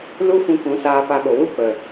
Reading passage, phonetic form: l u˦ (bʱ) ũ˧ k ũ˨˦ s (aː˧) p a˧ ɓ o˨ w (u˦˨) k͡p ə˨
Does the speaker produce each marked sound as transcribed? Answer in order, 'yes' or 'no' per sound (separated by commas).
no, yes, yes